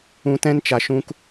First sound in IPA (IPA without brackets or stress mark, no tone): ũ